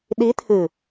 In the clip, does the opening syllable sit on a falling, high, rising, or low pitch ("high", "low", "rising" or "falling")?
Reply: rising